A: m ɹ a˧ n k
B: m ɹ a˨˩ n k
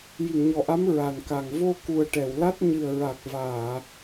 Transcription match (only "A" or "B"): B